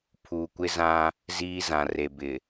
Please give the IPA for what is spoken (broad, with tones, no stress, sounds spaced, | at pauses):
pʰ uː˨ kʷ ɪ˦ z ã˦ | z iː˦ z ã˨ r e˨ b ɪ˨